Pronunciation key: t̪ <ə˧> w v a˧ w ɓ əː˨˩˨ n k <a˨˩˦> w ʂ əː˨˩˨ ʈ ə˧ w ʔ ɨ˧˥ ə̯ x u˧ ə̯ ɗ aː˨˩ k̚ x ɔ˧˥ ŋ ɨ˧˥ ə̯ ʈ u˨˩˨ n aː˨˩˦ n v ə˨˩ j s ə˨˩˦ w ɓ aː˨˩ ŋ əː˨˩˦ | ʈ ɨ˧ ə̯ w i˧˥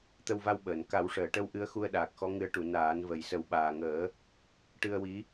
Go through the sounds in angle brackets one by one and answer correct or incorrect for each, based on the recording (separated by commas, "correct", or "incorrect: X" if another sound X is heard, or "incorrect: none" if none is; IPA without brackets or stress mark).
correct, correct